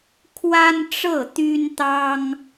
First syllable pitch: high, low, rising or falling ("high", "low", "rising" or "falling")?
high